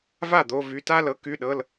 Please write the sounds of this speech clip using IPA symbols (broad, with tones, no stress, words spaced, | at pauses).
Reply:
va˥˩ d̪o˩˧˩vy˩˧˩ ta˥˧lɤ˩˥ ky˩˧˩ɗɤ˩˧˩l